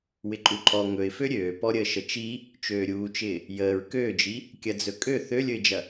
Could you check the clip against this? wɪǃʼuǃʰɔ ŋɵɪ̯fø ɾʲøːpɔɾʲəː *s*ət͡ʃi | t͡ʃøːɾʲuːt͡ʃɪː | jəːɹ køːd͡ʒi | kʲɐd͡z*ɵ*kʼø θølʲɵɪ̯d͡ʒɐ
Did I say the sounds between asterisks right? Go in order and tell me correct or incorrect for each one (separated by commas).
incorrect, correct